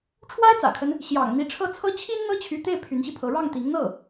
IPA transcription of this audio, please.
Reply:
ʈ͡ʂʰ w a˥ ɪ̯ t͡s ä̰˨˩ kʰ ə˦ n | ɕ j ɑ̰˨˩ ŋ n̪ i˧˥ ʈ͡ʂʰ ɤ˥˩ t͡sʰ ɤ˥ t͡ɕʰ i˥ n n̪ ɤ˥ t͡ɕʰ y˧˥ t̪ e˥˩ ɪ̯ pʰ y˧˥ n ɕ i˧ pʰ ɤ˧˥ ɻ ɑ˥˩ ŋ t̪ i˧˥ ŋ n̪ ɤ˥˩

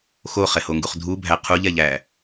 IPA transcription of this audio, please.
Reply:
x o χ ɛ h o ŋ ɡ u χ dʱ u bʱ æ qʰ u ʎ ɛ ʎ æ

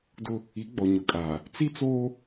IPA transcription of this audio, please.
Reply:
d ʊ˦ | i˨˦ ɡ͡b ɔ˨ ɲ ʊ˨ kʼ aː˨ | t͡s i˦ t͡s oː˦

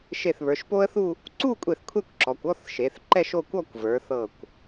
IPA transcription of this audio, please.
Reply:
ʃ e˧˩ θ β ə˞˩˧ ʃ p o˥ ə̯ θ u˥˧ | ǀ u˥˧ kʷʼ e˧˩ θ kʷʰ ɛ˥˧ kʷ ǁ ɔ˩˧ kʷ ɔ˥˧ θ ʃ e˩˧ θ ǃ ɛ˥˧ ʃ o˥˧ kʷ ɔ˥˧ kʷ v ə˞˩˧ θ ɤ˧˩ kʷ

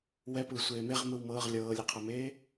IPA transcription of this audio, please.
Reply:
w ɛ p ɯː sʷ eː m e ʁ m ɯ w m ɤː ʁ lʲ ɤː lʲ e qʰ a m eː

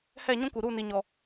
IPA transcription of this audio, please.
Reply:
h ɛ˦˨ ɲ ũ˦ k u˨ ɾ u˦˨ n i˨ ɲ ɔ˨

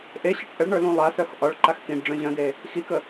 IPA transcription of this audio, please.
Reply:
ʔ e ɕ ɒ ʈ ʔ ə ɭ ɳ ə˞ l ũ lˠ a s œ x ʔ ɒ ɭ ǃ a x k ĩ ɖ ɖ͡ʐ œ̃ ʑ œ̃ d e | x i k ə

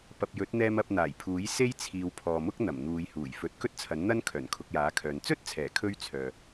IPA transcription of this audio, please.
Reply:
p ɐ˨ p̚ j ɵ˨˥ t̚ n̪ ɛː˧ m ɐ˧ p̚ n̪ aː˨˩ j pʰ uː˨˥ j s e˥ j t͡sʰ iː˨˧ w pʰ ɔː˨ m ʊ˥ k̚ n̪ ɐ˨˩ m n̪ uː˨˧ j h uː˨˩ j f ɵ˨˥ t̚ k ɵ˥ t̚ t͡sʰ ɐ˨˥ n n̪ ɐ˥ n kʰ œː˨˩ n kʰ ʊ˧ k̚ j aː˨˥ kʰ œː˨ n t͡s ɵ˥ t̚ t͡sʰ ɛː˨˩ kʰ ɵ˧ ɥ t͡sʰ œː˨

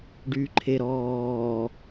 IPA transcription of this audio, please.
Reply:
ɖ yː ǃʰ e ɾ ɔː

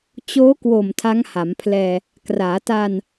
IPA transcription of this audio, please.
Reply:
t͡ɕ oː˦˥ k w o˨˩ m tʰ a˦˥ ŋ h a˩˦ m pʰ l ɛː˧ | k r aː˩˦ t a˧ n

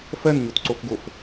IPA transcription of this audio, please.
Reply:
f ɜ n ɲ o t ǀ o f ɡ o f

